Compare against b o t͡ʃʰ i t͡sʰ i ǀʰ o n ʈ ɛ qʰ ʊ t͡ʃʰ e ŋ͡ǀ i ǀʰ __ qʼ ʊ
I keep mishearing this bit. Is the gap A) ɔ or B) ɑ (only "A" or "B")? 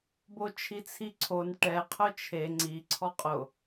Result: A